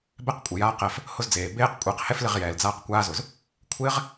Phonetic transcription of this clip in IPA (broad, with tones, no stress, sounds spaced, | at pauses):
b ɛ˦ q kʷʼ ɪ˨ j aː˦ q ɛ˧ f | h ʊ˦ z d͡z eː˨ b eː˦ q kʷʼ ɛː˧ q h ɛ˦ f l ɪ˦˨ ʁ j ɛː˨ l d͡z aː˦ q kʷ aː˦ z ʊ˨ z | kʷʰ ɪː˦ ʁ